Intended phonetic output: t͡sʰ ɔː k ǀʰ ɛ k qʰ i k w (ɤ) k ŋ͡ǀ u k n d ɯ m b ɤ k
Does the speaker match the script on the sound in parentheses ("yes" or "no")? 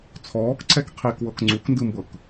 yes